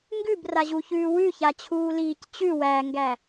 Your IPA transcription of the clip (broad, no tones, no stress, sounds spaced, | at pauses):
ŋ ɡ ʉ b r a ʑ u ç ʉː w ʉ ç a t͡ɕʰ uː l iː c t͡ɕ ʉ w æ ŋ ɡ æ